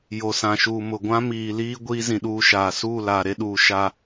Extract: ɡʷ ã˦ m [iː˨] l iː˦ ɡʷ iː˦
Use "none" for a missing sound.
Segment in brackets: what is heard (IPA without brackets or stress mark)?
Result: iː˨